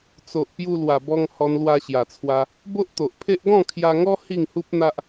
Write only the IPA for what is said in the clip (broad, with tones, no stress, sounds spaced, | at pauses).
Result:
t͡s o˨ ʔ p j u˧ l w a˨˩ b ɔ˧ ŋ h ɔ˧ n l w a˧ ɕ j a˨˩ t͡sʰ w a˧ | b o˦ ʔ t̪ o˨ ʔ pʰ e˦ ʔ ɡ ɔ̃˥˧ kʰ j a˧ ŋ ɔ˦ h i˥˧ ŋ h u˦ p̚ n̪ a˦ ʔ